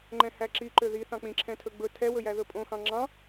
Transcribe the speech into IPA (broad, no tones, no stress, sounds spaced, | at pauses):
ŋ͡ǃ ɛ̃ h æ ǁ i ǃ ø ð i θ ɑ̃ k͡p ĩ ǁʰ ɛ̃ tʰ ɵ ɡ͡b ɵ tʰ ɛ w ɵ j æ ð ɵ pʼ õ x ɑ̃ ŋ͡ǁ ɑ̃